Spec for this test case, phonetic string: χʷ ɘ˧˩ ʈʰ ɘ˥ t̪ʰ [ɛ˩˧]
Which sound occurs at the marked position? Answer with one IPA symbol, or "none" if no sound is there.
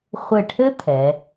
ɛ˩˧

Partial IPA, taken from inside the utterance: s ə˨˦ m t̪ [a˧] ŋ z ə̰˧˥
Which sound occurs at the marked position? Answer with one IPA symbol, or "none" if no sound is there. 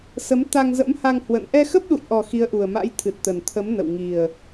a˧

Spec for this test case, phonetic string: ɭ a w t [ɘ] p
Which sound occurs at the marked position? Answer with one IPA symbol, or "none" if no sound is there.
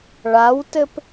ɘ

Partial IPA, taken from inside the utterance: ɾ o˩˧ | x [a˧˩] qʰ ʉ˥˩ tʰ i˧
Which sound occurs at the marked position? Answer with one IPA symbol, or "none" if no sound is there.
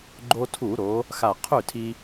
a˧˩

